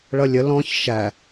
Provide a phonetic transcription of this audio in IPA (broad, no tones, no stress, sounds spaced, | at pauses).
ɭ ʌ lʲ ə l ɔ̃ ç ʃ æ